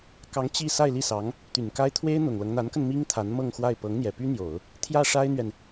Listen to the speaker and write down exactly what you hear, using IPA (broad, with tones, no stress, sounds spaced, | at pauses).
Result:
k ɑ˧˥ ŋ t͡ɕ i˥˧ s a˥˧ ɪ̯ l i˥˩ s ɑ˧˥ ŋ | t̪ y˨˩ n k a˥ ɪ̯ t̪ʰ w e˥ ɪ̯ n̪ ʊ˨˩ ŋ l ɤ˦ ŋ n̪ a˧˥ n k ə˧ n m i˥ ŋ t̪ʰ a˧˥ n m ɤ˥˧ ŋ x w a˥˩ ɪ̯ p ɤ˧˥ ŋ n̪ j ɛ˨˩ p y˥ n̪ j o˨˩˦ ʊ̯ | t̪ʰ j ä˥˩ ʂ a˥ ɪ̯ n̪ ɥ ɛ˨ n